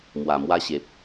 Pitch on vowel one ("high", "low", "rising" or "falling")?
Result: low